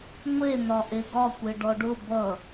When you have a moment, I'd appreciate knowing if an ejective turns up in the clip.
no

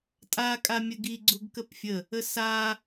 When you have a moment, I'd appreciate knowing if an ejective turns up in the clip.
yes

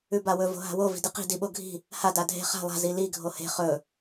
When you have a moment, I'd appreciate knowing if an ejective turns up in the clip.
no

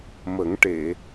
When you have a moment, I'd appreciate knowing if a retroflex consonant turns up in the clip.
yes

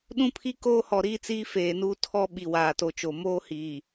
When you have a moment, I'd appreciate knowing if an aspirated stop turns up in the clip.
yes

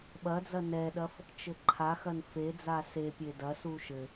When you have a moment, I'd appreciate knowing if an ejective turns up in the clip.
no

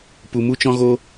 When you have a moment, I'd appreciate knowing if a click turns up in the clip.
no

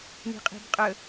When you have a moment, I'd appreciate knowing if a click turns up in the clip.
no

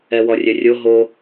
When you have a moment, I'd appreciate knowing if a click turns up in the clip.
no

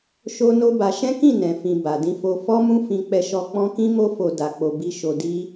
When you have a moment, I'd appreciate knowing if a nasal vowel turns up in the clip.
yes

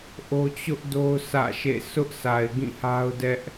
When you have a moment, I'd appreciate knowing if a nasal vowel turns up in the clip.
yes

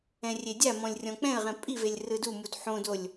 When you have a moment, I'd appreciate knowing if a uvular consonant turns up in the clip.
yes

